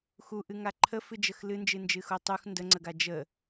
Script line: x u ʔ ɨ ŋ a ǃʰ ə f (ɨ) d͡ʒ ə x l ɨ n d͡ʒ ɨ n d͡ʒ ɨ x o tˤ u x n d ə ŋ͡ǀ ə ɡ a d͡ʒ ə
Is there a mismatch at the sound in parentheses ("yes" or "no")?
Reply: no